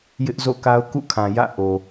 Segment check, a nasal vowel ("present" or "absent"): present